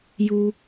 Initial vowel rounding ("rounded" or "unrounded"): rounded